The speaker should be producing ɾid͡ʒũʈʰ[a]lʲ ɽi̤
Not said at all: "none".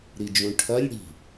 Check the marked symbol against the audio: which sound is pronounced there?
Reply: ɐ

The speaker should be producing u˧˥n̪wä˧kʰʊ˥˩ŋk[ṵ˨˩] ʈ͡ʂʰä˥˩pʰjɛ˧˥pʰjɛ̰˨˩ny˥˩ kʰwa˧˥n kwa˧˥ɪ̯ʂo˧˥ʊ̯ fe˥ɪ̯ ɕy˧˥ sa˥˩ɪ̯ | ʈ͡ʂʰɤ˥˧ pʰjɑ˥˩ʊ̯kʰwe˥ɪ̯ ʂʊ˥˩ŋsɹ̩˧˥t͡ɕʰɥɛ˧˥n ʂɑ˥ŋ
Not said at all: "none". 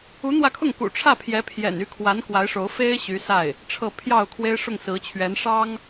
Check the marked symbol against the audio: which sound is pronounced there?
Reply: ṵ˨˩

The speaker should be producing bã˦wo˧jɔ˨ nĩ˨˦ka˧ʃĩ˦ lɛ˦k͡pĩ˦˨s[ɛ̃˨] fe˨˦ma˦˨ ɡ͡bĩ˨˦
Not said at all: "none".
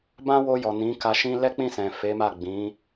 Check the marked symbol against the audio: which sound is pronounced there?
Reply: ɛ̃˨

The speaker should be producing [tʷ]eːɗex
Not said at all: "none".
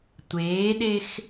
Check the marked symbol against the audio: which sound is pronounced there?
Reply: tʷ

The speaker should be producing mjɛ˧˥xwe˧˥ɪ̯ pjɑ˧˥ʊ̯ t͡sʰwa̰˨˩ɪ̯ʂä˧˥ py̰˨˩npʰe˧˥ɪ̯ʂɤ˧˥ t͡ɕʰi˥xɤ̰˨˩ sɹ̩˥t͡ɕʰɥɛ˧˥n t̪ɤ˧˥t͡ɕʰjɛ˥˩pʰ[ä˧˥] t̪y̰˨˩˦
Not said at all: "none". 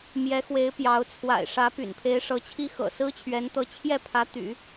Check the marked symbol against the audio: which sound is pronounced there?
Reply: ä˧˥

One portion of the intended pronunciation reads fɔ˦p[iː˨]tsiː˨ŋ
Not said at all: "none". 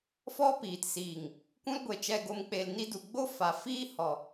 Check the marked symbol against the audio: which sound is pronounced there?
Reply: iː˨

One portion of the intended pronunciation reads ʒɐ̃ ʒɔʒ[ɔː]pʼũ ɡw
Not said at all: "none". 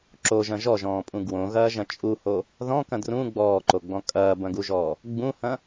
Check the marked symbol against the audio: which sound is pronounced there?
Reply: ɔ̃ː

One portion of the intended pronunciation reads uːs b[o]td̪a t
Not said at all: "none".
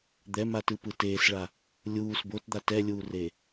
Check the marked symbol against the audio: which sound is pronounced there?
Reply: o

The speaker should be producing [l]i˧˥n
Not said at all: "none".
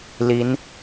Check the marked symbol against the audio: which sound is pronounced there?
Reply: l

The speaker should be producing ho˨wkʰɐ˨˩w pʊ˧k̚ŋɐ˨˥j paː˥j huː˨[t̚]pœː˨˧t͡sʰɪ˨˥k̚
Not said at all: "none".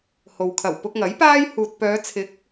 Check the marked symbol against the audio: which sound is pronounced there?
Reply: t̚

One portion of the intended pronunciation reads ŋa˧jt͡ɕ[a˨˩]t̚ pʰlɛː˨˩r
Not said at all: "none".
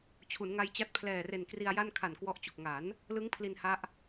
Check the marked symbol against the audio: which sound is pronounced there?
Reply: a˦˥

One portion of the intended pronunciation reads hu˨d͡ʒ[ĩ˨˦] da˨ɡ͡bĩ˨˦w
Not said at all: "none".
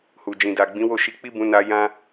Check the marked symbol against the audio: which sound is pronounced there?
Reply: ĩ˨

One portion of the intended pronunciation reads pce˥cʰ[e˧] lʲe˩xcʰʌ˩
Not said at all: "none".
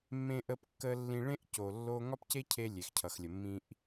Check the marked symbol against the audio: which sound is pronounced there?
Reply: e˧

